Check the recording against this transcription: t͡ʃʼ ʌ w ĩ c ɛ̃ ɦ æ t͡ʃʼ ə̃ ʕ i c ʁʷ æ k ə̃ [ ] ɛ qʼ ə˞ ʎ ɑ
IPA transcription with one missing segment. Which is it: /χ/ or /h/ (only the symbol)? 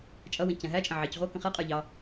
χ